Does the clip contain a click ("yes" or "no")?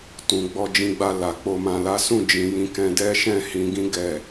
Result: no